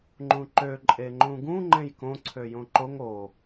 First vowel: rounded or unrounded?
rounded